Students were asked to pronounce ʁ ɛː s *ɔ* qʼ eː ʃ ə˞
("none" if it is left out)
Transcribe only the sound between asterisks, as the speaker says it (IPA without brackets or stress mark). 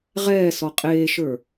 ɔ